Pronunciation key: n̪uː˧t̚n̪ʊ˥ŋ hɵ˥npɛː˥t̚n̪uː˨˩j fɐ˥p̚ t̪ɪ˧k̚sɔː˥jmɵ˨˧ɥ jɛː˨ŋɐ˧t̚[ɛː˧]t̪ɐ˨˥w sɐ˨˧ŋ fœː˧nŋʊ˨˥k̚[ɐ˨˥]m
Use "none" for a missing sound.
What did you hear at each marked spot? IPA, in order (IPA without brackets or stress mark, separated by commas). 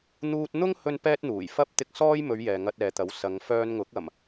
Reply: ɛː˨, ɐ˨˩